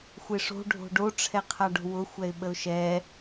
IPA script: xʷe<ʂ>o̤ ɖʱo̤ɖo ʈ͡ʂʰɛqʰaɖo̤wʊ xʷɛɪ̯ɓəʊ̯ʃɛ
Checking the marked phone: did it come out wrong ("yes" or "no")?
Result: no